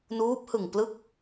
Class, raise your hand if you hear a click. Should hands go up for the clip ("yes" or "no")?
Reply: no